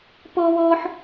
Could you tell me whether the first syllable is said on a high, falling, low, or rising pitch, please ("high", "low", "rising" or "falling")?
high